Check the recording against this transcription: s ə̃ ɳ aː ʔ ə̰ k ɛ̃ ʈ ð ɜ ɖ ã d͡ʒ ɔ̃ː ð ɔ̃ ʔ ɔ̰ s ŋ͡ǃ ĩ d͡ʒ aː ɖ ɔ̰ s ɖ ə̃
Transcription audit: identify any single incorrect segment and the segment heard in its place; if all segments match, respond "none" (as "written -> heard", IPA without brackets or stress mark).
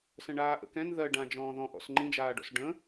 ʈ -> n